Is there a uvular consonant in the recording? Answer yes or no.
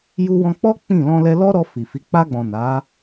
no